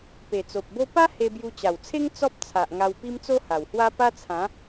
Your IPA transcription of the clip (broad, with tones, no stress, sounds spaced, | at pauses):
p e˨˩ t͡s o˨ p̚ b o˦ p a˦ h e˧ b j u˧ t͡ɕ a˨˩ w t͡sʰ e˦ ŋ t͡s ɔ˦ p̚ t͡sʰ a˨ ʔ ŋ a˧ w p i˦ m t͡s o˦ h a˨˩ w h w a˦ p a˦ t͡sʰ ã˨˦